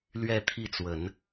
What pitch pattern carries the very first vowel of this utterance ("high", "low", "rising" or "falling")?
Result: falling